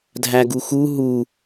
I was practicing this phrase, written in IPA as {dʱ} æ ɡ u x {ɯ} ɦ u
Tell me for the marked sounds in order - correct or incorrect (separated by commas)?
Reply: correct, incorrect